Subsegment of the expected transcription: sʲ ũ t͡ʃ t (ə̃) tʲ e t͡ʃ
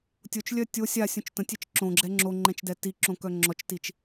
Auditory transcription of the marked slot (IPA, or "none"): ə̃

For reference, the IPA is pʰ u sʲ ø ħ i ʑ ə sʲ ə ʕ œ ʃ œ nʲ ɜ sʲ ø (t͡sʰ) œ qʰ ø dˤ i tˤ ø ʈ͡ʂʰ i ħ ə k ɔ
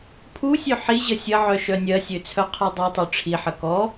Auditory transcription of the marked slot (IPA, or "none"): t͡sʰ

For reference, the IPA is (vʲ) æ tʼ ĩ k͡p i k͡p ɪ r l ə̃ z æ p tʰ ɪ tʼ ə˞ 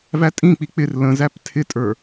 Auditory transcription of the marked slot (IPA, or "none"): v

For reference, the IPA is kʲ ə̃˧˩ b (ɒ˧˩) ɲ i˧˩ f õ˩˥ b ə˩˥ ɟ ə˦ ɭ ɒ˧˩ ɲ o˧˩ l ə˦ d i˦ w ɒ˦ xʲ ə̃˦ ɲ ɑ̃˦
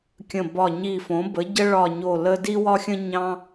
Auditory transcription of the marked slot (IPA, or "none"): ɒ˧˩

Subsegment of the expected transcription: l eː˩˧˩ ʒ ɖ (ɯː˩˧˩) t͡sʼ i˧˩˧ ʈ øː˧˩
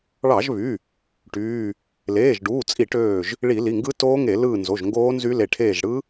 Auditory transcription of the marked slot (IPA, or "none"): uː˩˧˩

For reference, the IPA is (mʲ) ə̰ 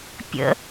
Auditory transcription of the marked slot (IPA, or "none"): pʲ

